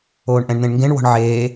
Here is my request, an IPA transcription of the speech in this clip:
oː ɳ ʔ ɛ̃ ɳ n̪ ẽ ɳ ŋ ɡ ẽ ɳ w ɔ̤ ɳ ʕ eː

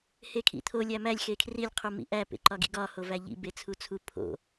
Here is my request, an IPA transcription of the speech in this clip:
h e kʰ ḭ t̪ʰ o lʲ æ m æ lʲ x e kʰ r i lʲ qʰ u m ḭ ʔ æ p ḛ ǃ ɒ ɡ ḭ ɡ ɒ h o v æ ʎ ḭ b e t͡sʰ u t͡sʰ u pʰ o̰

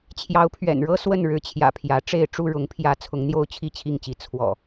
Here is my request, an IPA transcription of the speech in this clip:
t͡ɕʰ j ɑ˨˦ ʊ̯ pʰ ɥ ɛ̰˨˩ n ɻ ɤ˦ s w ə˥˨ n ɻ ɻ̩˨˦ t͡ɕʰ j ä̰˨˩ pʰ j ä˨˦ ʈ͡ʂ e˥˨ ɪ̯ ʈ͡ʂ u˥˨ ɻ ʊ˨˦ ŋ pʰ j ä˨˦ t͡sʰ ʊ˨˦ ŋ n̪ j o˦ ʊ̯ t͡ɕʰ i˥˨ t͡ɕʰ i˥˨ ŋ t͡ɕ i˨˦ t͡sʰ w ɔ̰˨˩

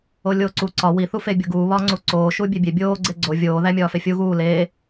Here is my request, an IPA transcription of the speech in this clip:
o lʲ oː ǀ u ǀ ɒ w i θ u f e bʲ o ɡ uː β ɒː ŋ͡ǀ u ǀ oː ʃ uː bʲ e bʲ e bʲ oː ɡ͡ǀ e ɡ͡ǀ o vʲ oː ð æ mʲ ɒː f e fʲ u ɣ uː l eː

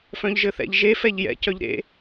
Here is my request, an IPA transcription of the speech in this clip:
f œ̃ ʎ ʒ ɘ θ ɛ̰ ʎ ʒ e f ɛ ʎ j ɛ̰ c œ ʎ ɾ ḛ

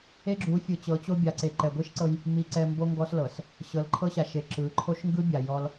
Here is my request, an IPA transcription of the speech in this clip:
e˦ ɡ͡ǁ u˨˦ fʲ ɯ˨ t͡ɕ ɤ˨˦ t͡ɕ o˦ bʲ a˨ ǀ e˨ ǃ ɛ˨ ɡʷ i˦ ʃ ǀ ɤ˦ j | m i˨ ǀ ɛ˨ m b o˦ ŋ ɡ ɔ˦ s l ɤ˨ s | ɕ ɤ˨ l ǃʰ ɤ˦ ɕ a˨ ʃ e˨ ǁ ɯ˨˦ ǃʰ o˦ ʃ ŋ ɡ ɯ˦ bʲ a˨ j ɔ˦ l

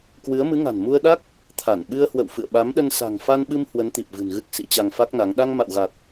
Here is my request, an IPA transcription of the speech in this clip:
k w ɨ˨˦ ə̯ m ɨ˨˦ ŋ a̤˨˩ n m u˧ ə̯ ɗ a˦˥ k̚ | t̪ʰ a˧˩ n ɓ ɨ˧ ə̯ h w ə̰˧˨ w f ɨ̰˧˨ ə̯ ɓ a˨˦ m ɗ ə˧ n s a̤˨˩ ŋ f a˧ n ɓ ɨ˧ m h w ə˨˦ n t̪ i˨˩ p̚ v ɨ̤˨˩ n ɣ ɨ˦˥ k̚ s ḭ˧˥ t͡ɕ a˧ ŋ f a˦˥ k̚ n a˨˦ ŋ ɗ a˧ ŋ m a̰˧˨ w ɣ a˨˩ t̚

